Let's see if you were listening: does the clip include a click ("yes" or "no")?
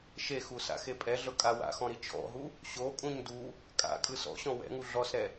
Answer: no